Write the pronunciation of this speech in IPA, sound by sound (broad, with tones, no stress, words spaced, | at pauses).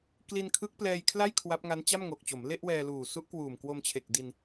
kli˧nkʰɯ˦˥k̚ plɛː˧jkʰla˥˩j kʰwa˦˥p̚ŋa˦˥n t͡ɕa˥˩mŋo˨˩k̚t͡ɕo˩˦m le˥˩ʔwɛː˧luː˨˩ su˦˥ʔkwuː˨˩mkwo˧m t͡ɕʰe˨˩k̚di˧n